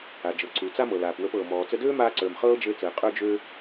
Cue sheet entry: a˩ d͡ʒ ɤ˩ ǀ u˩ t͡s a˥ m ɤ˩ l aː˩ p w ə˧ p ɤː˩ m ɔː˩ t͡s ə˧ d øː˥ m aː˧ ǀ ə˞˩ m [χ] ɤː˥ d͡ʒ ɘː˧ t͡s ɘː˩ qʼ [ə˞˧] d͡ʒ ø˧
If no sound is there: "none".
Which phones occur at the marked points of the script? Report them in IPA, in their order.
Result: χ, ə˞˧

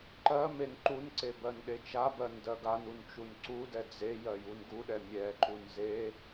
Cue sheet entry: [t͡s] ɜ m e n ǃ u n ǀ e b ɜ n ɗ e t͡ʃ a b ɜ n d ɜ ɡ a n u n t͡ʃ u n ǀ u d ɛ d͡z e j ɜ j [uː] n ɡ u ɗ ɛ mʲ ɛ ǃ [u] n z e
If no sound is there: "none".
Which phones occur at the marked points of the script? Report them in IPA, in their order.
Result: ǃ, u, u

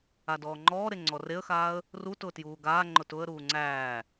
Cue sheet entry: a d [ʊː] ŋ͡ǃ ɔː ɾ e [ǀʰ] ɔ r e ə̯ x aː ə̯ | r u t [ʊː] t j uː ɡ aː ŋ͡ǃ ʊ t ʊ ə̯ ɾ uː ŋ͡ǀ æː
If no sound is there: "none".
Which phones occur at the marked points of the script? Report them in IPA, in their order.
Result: ɔː, ŋ͡ǀ, ʊː

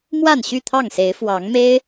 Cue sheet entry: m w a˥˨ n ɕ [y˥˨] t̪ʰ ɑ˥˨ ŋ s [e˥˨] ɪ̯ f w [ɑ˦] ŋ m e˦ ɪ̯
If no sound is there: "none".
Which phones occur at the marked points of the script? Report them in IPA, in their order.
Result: y˥˨, e˨˦, ɑ˨˦

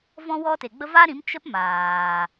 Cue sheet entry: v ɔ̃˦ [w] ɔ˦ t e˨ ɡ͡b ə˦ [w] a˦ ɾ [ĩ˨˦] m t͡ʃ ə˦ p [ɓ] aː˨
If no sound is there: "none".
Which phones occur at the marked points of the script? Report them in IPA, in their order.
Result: w, v, ĩ˨˦, m

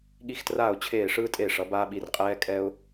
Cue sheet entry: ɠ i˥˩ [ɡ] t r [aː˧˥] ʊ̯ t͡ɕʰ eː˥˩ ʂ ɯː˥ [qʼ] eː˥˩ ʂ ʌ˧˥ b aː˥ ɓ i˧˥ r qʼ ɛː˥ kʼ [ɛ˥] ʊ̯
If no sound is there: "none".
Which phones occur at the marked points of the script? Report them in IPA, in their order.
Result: x, aː˥˩, tʼ, ɛ˥

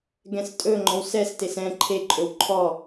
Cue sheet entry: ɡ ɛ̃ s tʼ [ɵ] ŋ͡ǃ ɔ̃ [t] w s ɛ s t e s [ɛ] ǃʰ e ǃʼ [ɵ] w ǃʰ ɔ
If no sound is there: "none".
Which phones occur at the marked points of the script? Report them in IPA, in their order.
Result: ɵ, none, ɛ̃, ɵ

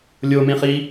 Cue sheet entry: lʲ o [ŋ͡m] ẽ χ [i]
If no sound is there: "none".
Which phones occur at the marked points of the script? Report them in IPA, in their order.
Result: m, i

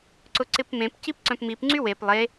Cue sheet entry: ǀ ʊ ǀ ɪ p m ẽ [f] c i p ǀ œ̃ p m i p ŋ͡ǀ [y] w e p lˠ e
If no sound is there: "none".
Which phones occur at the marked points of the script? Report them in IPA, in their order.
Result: p, y

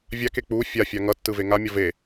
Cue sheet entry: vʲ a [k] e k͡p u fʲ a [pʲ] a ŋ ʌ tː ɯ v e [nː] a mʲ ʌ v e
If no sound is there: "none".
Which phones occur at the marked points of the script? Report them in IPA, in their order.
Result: k, fʲ, ŋ

